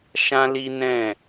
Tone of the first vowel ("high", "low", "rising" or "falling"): high